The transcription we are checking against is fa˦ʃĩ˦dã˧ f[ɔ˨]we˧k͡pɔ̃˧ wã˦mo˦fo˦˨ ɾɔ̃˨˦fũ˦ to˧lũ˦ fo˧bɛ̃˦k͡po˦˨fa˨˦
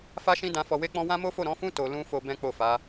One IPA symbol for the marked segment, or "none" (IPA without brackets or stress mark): ɔ˨